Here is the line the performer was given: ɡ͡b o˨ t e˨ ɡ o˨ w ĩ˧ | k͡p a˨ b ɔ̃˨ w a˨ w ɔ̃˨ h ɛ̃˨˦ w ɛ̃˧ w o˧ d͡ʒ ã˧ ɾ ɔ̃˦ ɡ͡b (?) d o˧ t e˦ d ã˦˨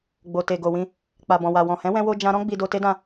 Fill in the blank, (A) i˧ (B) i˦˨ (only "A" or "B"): A